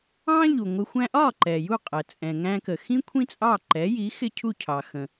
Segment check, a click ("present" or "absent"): present